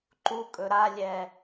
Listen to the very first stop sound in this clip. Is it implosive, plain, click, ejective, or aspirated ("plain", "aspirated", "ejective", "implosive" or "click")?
click